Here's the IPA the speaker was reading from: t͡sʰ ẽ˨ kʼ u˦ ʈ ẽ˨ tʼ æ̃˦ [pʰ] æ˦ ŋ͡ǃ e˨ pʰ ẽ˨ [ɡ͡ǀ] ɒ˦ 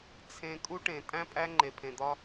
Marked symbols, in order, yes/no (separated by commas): no, no